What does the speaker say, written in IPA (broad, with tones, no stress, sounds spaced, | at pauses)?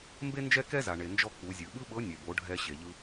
m b e˥ n d͡ʒ ɛ˥ k ɛ˥ z a˩ ɳ e˩ n d͡ʒ ɔ˧ k͡p u˩˧ zʲ ɯ˩ ɓ ɯ˥ ɓ ɤ˧˥ nʲ ɛ˩ b o˩˧ ɖʱ ɛ˧ ɕ e˩ ʎ ɯ˧